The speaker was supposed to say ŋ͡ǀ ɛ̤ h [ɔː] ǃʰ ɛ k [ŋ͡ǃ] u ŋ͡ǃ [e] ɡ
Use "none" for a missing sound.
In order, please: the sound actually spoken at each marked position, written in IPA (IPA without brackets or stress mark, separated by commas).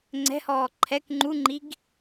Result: ɔː, ŋ͡ǃ, i